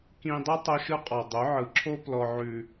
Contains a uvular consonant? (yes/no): yes